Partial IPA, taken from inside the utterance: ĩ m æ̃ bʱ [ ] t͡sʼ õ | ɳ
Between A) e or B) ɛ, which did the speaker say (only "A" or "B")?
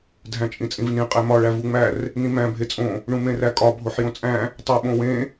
A